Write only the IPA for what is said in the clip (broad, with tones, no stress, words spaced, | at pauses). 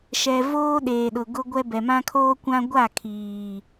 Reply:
ʃɛ˨voː˦ ɗeː˨ɗʊ˨ɡʊ˦ɡʷɛ˦ bɛ˨mã˦kʰoː˦kʷã˦ ɡʷa˦˨kʰiː˨